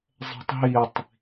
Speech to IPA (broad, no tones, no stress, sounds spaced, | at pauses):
zˤ ɛ̤ tˤ ɦ i tˤ